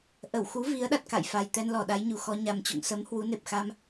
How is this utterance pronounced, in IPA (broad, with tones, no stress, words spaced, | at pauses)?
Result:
ʔə˧˩wxu˨˦ vi˨˦ə̯ɗa˨˩t̚ ka̰˧˨j fa˨˩jt̪ɛ˧n lɔ˨˩ɗa˨˦jɲu˨˩xɔ˧ ɲa˨˩mt͡ɕo̰˧˨ŋsə˨˦m hwu˨˦ne˨˩p̚xa˧m